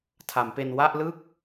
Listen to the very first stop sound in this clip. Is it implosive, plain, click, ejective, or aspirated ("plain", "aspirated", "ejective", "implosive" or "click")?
aspirated